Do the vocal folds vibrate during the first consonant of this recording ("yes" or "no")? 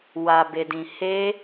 yes